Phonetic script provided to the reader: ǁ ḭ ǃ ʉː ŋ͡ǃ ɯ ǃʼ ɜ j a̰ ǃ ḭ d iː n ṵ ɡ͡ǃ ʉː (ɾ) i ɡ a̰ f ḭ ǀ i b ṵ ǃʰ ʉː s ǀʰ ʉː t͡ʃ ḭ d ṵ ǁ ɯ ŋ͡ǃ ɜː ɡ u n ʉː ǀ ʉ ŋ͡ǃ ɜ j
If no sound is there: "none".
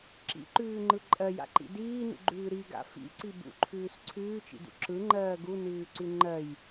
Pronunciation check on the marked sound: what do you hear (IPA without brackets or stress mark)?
ɾ